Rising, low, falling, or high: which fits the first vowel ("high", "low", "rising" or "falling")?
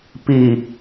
low